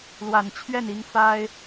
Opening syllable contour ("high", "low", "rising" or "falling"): low